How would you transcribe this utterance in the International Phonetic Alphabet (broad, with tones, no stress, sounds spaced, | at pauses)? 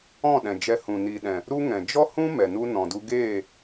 ɔ̃˦˨ ɗ ɛ̃˨ d͡ʒ ɛ˧ h ũ˨ n i˨ ɗ ɛ̃˨ | ɾ u˦ ŋ ɛ̃˨ d͡ʒ ɔ˦ h ũ˦ m ɛ˨ n u˦ n ɔ̃˨ d u˧ ɡ eː˦˨